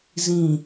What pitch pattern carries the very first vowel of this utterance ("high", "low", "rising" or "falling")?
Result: low